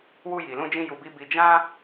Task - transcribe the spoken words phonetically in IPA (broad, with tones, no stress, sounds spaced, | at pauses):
w u˧ j i˨ l ũ˧ d͡ʒ ĩ˧ j u˧ b i˦ b i˧ d͡ʒ ã˦